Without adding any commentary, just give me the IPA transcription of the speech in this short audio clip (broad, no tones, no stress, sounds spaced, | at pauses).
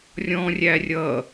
rʲ ɔ̃ rʲ æ rʲ ʌ